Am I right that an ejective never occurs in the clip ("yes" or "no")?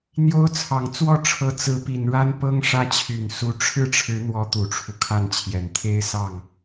yes